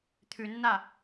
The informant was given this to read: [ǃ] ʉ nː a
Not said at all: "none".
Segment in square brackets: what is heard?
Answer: t̪ʰ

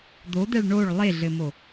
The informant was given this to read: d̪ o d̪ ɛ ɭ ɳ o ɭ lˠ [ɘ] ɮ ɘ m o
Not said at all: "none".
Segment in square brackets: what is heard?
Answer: e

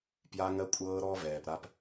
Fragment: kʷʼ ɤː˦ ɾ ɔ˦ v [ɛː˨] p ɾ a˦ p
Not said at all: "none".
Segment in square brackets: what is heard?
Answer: ɛː˨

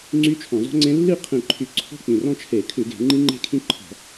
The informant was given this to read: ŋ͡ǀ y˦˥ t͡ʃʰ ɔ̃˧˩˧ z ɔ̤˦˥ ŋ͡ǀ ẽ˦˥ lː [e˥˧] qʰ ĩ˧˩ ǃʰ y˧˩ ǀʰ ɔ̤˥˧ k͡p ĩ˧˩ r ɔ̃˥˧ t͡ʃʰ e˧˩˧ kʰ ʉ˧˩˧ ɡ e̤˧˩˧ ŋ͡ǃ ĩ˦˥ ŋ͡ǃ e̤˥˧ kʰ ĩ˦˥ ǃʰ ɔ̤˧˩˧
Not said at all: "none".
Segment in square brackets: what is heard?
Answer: i˥˧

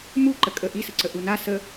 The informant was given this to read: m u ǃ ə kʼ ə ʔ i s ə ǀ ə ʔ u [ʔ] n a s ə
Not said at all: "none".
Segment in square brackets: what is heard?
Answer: none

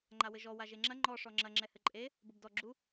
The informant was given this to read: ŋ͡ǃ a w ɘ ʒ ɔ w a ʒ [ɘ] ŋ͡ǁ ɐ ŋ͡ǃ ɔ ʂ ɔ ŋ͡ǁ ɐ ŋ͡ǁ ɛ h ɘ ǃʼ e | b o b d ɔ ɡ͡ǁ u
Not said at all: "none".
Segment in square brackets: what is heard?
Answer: e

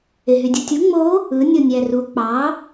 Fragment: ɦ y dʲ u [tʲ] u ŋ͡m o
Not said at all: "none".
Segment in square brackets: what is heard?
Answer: tʲ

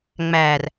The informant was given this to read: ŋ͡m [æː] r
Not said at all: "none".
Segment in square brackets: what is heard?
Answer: æː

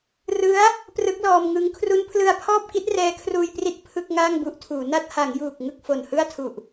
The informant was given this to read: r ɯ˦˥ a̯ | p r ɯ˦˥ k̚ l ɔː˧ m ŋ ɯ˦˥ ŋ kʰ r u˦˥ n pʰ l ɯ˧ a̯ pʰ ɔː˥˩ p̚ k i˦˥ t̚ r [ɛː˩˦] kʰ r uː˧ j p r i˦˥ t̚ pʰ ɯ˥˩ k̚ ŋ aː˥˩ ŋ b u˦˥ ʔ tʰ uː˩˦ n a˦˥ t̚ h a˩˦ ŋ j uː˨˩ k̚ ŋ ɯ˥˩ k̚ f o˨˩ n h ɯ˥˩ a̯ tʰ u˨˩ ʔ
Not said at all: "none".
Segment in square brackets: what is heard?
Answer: ɛː˦˥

